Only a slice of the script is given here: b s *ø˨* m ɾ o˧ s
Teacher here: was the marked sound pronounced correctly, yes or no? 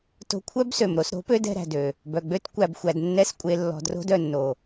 yes